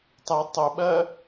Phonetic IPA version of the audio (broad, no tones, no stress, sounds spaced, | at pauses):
tˤ ɨ tˤ u ɓ ɜ